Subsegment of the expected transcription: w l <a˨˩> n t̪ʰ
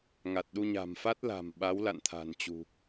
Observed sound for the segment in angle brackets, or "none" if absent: a̰˧˨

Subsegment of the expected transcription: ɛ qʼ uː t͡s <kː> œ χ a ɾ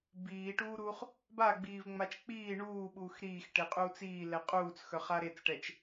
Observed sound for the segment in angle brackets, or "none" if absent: x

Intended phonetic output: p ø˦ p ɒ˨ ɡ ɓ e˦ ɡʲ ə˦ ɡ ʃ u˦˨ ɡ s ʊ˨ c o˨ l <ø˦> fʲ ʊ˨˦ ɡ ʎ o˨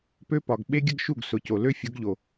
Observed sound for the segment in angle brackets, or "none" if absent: ø˦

